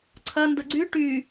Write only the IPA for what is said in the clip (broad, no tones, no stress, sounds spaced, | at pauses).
ǀʰ ɐ n d ə ɡ͡ǀ y ʈ y